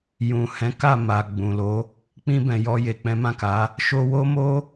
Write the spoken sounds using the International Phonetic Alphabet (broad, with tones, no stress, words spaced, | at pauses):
jũ˨hɛ̃˨˦ka˦˨ ma˨ɡ͡bũ˨lo˨˦ | k͡pĩ˧ bɛ̃˨jɔ˧je˨k͡pɛ̃˨˦ mã˦˨ka˨˦ | ʃo˧wo˦mo˦